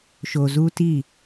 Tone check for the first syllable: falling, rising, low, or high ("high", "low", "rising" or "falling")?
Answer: low